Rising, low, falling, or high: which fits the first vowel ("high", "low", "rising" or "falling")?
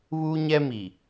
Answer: high